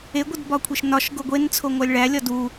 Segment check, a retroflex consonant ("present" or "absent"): present